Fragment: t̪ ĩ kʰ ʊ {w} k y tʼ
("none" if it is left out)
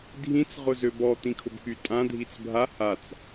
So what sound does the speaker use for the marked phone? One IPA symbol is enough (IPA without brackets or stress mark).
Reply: b